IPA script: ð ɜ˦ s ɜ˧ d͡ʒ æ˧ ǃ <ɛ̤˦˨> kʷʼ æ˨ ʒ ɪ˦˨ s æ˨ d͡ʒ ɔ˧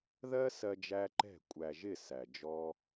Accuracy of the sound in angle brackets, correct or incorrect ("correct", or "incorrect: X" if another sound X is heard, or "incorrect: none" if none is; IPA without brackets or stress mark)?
correct